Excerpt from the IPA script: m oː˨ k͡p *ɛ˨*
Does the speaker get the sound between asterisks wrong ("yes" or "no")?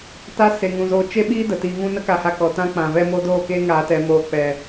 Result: no